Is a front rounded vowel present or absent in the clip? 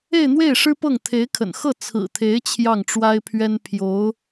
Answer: absent